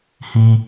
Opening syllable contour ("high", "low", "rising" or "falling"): high